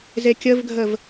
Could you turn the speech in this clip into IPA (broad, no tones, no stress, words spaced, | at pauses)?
zekʲəvɡʱəv